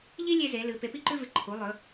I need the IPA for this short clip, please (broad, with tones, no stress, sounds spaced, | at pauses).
ʎ i˥ lʲ e˥ z e˩˥ l ɨ˩˥ p e˩˥ p i˥ ǃ ʉ˥ v ɨ˩˥ ǃʰ u˩˥ lˠ ɵ˩˥